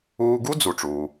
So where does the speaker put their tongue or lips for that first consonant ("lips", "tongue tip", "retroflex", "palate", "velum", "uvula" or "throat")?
velum